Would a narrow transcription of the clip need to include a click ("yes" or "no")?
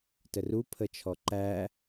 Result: yes